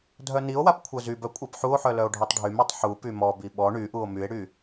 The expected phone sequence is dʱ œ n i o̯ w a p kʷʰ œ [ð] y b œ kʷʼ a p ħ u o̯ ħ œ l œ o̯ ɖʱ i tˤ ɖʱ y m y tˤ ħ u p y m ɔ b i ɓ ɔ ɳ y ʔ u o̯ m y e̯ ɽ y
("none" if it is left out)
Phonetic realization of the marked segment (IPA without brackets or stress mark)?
z